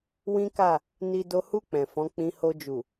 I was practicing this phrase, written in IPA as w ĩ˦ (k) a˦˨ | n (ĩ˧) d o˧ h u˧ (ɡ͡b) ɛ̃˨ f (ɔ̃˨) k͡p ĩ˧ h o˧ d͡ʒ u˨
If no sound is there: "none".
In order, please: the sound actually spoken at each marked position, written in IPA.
k, i˧, k͡p, ɔ̃˨˦

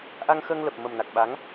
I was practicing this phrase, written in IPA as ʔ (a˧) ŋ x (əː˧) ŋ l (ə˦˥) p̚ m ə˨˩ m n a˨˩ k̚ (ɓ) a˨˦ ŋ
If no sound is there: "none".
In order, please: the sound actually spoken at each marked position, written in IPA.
a˧, əː˧, ə˨˩, ɓ

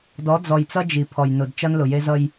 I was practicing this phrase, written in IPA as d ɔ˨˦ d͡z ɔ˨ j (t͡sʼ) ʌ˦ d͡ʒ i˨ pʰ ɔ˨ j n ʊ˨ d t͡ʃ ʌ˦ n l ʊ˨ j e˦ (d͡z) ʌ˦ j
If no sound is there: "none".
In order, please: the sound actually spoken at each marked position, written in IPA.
t͡s, z

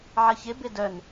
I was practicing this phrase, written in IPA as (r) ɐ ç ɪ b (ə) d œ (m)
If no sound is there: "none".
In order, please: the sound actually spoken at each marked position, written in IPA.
ʕ, ɪ, n

